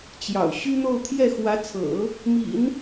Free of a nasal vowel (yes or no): yes